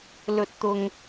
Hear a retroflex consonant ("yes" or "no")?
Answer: no